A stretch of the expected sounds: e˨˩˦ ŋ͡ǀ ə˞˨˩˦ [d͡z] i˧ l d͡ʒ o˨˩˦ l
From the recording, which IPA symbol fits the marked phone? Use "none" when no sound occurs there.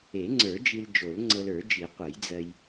d͡ʒ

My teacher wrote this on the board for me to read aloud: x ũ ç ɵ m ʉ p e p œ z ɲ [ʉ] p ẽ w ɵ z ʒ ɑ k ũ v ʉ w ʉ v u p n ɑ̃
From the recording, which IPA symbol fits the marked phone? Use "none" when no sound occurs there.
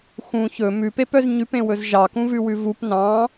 ʉ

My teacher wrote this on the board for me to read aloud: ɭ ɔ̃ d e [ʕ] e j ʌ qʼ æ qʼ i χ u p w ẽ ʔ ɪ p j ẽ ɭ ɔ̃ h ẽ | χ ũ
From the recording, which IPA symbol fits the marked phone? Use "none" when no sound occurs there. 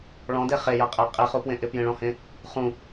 χ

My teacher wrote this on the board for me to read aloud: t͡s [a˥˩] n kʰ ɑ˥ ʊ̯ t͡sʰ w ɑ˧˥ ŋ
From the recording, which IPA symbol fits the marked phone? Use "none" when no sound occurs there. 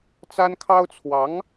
a˥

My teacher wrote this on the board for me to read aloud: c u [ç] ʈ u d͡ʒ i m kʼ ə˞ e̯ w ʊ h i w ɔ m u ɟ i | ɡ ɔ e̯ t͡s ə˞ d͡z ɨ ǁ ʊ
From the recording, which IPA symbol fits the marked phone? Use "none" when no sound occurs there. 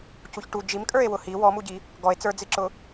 ç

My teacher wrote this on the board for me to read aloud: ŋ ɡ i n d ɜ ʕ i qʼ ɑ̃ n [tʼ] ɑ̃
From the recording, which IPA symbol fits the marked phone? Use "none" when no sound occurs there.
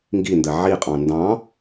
d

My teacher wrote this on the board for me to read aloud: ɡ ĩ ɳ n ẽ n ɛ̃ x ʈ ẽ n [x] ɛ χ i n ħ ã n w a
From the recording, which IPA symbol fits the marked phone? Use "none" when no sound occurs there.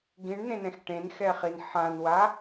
x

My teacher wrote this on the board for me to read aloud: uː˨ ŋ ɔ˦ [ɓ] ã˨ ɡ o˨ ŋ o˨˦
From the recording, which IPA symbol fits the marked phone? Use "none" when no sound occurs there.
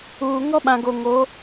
ɓ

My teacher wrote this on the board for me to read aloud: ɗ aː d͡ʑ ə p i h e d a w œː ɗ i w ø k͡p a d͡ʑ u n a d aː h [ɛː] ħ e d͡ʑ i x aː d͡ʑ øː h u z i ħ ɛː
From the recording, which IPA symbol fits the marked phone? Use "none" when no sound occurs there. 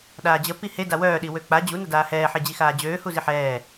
ɛː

